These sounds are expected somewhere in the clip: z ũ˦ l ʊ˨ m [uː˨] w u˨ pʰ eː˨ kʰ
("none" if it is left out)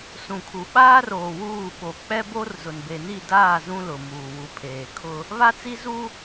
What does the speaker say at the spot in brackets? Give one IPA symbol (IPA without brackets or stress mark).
uː˨